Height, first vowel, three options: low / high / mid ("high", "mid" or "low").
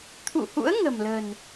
high